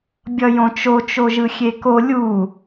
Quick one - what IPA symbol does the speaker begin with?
bʲ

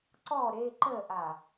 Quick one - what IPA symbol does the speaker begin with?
ǀ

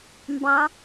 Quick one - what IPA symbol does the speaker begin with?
m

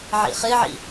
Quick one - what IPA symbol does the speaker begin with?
ʕ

